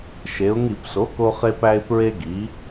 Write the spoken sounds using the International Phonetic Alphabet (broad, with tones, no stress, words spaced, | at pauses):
ʃe˩˧ʊ̯ŋi˧˩˧pso˩˥ ko˧χe˧pæ˧ɪ̯ pɹe˧ɡi˩˧